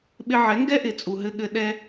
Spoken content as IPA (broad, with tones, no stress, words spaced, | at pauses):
ɓɪ˧ʕɛ˨˦ŋɡɛ˦ʔɪ˨ t͡sʼu˨ɦɘ˧ ɠɘ˧ ɗɛ˧